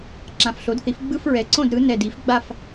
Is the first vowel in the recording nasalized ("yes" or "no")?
yes